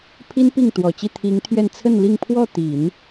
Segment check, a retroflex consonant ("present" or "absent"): absent